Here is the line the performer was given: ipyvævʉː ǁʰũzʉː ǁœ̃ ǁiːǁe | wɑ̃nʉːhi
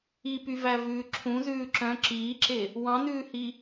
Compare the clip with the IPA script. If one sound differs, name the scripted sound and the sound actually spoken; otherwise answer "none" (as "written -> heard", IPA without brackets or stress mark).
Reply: none